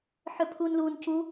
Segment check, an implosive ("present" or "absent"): absent